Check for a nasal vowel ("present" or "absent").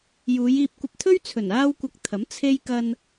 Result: absent